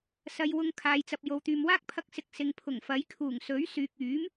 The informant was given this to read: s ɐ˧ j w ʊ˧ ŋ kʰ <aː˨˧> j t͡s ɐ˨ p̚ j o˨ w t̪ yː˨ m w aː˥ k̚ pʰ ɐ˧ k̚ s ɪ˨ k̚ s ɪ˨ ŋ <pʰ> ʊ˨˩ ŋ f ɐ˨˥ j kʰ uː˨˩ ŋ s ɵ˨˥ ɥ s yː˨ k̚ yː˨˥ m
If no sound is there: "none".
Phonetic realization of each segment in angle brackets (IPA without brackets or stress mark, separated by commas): aː˨˧, pʰ